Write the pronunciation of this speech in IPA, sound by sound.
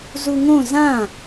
z u ŋ õ z ã

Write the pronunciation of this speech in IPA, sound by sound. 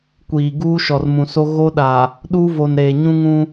kʷ iː˨ ɡ uː˦ ʃ ɔ˨ r m ũ˨ s o˦ ɣ o˦ ɗ a˨ | ɗ uː˦ v o˨ n ɾ eː˨ ɲ ũ˦ ŋ ũ˦

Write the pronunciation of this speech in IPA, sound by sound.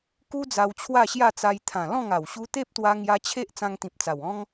k u˦ d͡z a˧ w t͡ɕʰ w a˥˧ ɕ j a˥˧ t͡s a˧ j t̪ʰ ã˨˩ l ɔ̃˥˧ ŋ a˨˩ w ɕ u˧ t̪ e˦ p̚ t̪ w a˧ ŋ j a˧ t͡ɕʰ e˦ ʔ t͡s ã˧ ŋ t̪ ĩ˨ p̚ t͡s a˨˩ w ɔ̃˦ ŋ

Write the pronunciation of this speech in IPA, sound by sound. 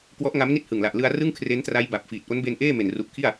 k w ɔ˦˥ ʔ ŋ a˦˥ m n i˥˩ t̚ h ɯ˨˩ ŋ l a˨˩ ʔ l ɯ˧ a̯ r ɯ˥˩ ŋ kʰ r e˦˥ n t r a˦˥ j b a˨˩ p̚ f iː˨˩ t̚ ʔ o˦˥ n b e˧ n ʔ eː˥˩ m e˨˩ n r u˨˩ ʔ kʰ i˥˩ a̯

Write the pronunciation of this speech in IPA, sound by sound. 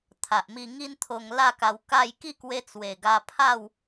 t̪ʰ a˨ ʔ m i˧ ŋ i˦ n t̪ʰ o˧ ŋ l a˥˧ k a˧ w k a˥˧ j k i˥˧ k w e˧ t͡s w e˨˩ ɡ a˧ pʰ a˥˧ w

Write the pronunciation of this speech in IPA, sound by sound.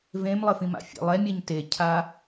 v ẽ m lˠ ɘ f ĩ m a̰ fʲ ḛ lˠ ɛ mʲ ɛ ɲ t e cʰ a

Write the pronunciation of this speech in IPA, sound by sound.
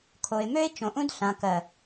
kʰ o˨ ɪ̯ m ø˦ ɪ̯ t͡ʃ õ˨ ʔ ũ˦ d ɬ ã˨ k ɜ˨

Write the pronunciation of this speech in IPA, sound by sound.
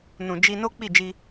n ũ˨ d͡ʒ i˧ n o˦ k͡p i˦˨ d͡ʒ i˧

